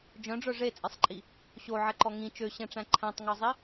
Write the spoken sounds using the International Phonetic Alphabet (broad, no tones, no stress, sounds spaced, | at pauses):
d͡ʒ œ̃ ɖ͡ʐ œ ʐ e t͡sʼ e sˤ ǃʼ i | ɕ o ʕ ɛ ǃ ɔ ŋ ĩ t͡ʃ ø ɕ ɛ̃ ʈ͡ʂ æ̃ ǃʰ æ̃ tˤ ŋ ɔ zˤ i